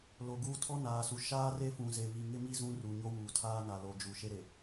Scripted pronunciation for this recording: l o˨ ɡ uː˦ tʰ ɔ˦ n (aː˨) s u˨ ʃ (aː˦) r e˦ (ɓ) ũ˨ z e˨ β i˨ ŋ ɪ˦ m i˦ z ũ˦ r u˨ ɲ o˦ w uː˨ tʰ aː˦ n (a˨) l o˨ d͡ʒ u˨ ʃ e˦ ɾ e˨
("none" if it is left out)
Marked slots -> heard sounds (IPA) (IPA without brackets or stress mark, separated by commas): aː˨, aː˦, f, a˨